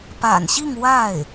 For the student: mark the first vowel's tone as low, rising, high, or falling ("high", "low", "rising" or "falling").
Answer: low